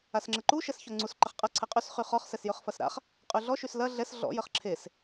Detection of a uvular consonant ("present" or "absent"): present